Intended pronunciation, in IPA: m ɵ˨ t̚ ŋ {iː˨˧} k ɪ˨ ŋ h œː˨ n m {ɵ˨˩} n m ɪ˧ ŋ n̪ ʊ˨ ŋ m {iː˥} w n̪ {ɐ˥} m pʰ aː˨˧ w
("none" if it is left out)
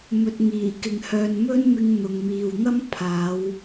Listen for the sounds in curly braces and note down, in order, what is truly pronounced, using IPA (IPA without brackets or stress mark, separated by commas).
iː˨˩, ɵ˥, iː˨, ɐ˥